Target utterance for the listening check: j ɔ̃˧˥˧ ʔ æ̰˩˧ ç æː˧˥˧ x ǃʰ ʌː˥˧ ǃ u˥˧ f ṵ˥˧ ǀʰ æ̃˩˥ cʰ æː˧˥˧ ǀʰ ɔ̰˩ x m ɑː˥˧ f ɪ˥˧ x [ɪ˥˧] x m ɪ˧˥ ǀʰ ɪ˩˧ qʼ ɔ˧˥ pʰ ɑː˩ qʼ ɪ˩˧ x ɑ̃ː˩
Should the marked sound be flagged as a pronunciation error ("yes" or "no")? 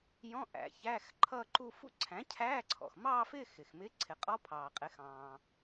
yes